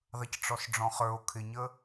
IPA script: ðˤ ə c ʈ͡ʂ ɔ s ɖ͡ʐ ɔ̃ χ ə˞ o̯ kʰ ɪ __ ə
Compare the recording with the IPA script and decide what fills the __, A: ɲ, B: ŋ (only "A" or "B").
A